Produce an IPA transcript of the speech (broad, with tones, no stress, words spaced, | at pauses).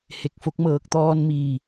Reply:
he˧˩k̚fo˧˥k̚ mɤː˧˩k̚t̪ɔː˧nmiː˧˩